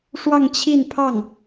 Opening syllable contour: falling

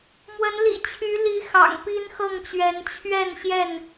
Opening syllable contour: rising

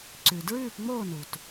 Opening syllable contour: low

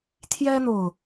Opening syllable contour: high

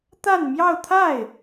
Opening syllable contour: falling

